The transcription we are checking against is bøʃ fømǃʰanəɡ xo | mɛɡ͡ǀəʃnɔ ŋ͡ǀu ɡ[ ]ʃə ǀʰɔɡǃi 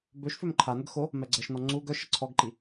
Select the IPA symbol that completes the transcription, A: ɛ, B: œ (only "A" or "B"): B